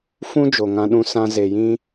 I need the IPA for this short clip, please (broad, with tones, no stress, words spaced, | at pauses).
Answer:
fũ˦ d͡ʒo˨ŋã˧ɗũ˦ sã˧ze˨jĩ˦